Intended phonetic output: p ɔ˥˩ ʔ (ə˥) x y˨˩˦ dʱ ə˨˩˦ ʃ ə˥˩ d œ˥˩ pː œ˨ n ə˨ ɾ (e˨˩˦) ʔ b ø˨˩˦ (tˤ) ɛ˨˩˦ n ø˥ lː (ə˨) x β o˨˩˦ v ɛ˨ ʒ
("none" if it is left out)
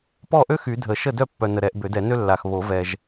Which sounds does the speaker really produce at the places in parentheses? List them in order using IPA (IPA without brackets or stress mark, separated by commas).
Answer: ø˥, ɛ˨˩˦, d, a˨